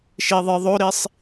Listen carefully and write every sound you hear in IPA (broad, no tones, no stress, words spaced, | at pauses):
ʃiðˤɨ ðˤoɾisˤ